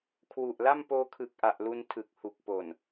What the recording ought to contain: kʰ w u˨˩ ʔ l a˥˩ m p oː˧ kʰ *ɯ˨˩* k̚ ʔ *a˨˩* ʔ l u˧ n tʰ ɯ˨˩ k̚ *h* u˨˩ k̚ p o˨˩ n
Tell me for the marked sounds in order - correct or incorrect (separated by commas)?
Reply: correct, correct, correct